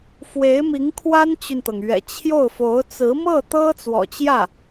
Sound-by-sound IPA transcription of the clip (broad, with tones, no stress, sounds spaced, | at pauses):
f w e˧˥ ɪ̯ m i˧˥ ŋ kʰ w a˥ n t͡ɕ y˨ n t̪ ɤ˩ ŋ ɥ ɛ̰˨˩ t͡ɕʰ j o˥˩ ʊ̯ f o˧˥ ʊ̯ t͡s ɹ̩˧˥ m ɤ˥˩ t̪ ɤ˥ t͡s w ɔ̰˨˩ t͡ɕ j ä˥˩